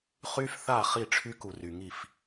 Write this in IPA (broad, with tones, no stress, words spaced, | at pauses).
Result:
χy˦˥fθa˥˩ χi˥˩ʈ͡ʂʰy˦˥ku˨ry˨ ŋi˥˩f